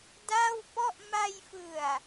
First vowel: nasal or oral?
oral